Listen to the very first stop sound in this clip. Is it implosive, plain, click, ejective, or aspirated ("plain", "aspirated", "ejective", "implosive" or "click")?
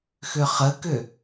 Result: plain